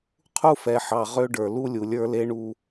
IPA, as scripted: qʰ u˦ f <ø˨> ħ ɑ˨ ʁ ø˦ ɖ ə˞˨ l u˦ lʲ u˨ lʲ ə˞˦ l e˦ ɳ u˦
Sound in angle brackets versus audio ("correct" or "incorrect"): incorrect